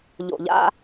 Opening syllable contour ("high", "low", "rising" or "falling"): low